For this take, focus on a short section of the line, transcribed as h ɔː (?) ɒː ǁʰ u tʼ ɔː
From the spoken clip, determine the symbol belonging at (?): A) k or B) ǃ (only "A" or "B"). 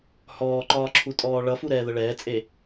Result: B